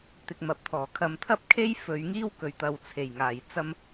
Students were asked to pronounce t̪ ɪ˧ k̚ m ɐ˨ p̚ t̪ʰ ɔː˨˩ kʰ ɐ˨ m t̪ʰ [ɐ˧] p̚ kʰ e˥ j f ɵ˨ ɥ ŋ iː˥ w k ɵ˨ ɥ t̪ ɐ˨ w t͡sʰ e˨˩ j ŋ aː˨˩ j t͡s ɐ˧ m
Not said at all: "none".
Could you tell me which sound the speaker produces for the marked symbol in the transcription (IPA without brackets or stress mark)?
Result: ɐ˥